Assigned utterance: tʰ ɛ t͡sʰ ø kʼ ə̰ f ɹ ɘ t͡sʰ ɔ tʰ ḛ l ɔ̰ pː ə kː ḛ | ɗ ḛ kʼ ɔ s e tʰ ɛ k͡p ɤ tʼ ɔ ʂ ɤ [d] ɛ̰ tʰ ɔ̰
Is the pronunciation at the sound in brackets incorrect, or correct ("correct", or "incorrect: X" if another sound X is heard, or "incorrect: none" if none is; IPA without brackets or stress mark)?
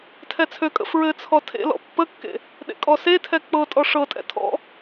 incorrect: tʼ